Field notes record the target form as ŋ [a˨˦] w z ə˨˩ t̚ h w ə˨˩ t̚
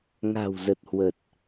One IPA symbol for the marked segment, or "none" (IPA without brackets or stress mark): a̤˨˩